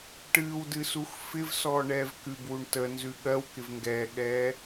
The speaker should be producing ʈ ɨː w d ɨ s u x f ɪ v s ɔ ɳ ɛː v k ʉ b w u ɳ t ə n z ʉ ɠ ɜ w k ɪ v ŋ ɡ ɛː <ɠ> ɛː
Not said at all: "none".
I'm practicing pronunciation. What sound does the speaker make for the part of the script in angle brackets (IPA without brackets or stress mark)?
ɠ